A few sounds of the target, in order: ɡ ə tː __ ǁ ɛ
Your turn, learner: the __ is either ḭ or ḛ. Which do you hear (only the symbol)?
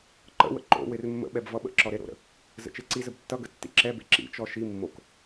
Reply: ḭ